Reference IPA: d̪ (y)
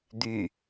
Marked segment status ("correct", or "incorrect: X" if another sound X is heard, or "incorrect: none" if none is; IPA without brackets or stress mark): correct